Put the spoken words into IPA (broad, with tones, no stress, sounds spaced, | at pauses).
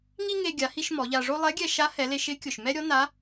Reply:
ŋ i˥ ŋ e˧ ɡʲ a˩˧ h i˧ ʃ m ɔ˩˧ ʎ a˧ ʐ o˥ lˠ ɛ˧˥ ɡʲ ɛ˧ ʃ a˧˥ h ɛ˩˧ l e˧ ʃ ɪ˧˥ kʲ ʊ˩ ʃ m ɛ˥ ɾʲ ɔ˧˥ n a˧˥